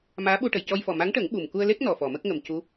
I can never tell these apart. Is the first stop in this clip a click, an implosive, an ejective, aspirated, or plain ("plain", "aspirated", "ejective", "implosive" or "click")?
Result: implosive